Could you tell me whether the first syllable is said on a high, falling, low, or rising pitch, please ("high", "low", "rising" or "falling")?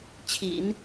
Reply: low